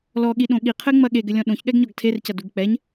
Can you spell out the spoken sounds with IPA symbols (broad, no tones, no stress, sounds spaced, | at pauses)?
l ɔ ɠ i ɗ õ ɠ i qʰ ɘ ŋ͡m ɐ ɠ e ɡ ɘ lʲ ɔ̃ ɗ õ ç ɠ ɛ ɡ ɲ ɔ ɡ tʰ e r c ɐ d u ɡ k͡p ɛ ɲ